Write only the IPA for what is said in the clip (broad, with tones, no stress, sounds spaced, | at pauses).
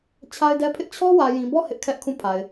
t͡ɕʰ a˦ ɪ̯ d ɛ˦ pʰ ɪ˦ ʔ t͡ɕʰ ɔ˦ w ä˨ j ĩ˨ b ɔ˦˨ h ɪ˦ ʔ kʰ ɛ˦ ʔ kʰ ũ˦˨ pʰ a˨ ɪ̯